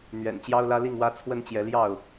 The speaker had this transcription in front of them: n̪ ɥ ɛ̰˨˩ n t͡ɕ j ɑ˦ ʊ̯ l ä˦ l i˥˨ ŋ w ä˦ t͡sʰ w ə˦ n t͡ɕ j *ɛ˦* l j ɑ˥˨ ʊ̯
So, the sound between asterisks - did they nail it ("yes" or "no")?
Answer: no